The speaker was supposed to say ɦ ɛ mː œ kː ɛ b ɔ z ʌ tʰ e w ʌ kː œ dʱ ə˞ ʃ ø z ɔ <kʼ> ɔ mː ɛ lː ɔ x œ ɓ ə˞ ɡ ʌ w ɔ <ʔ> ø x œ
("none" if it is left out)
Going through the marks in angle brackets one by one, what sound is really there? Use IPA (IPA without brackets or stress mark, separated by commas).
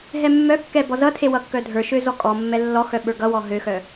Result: kʼ, ɦ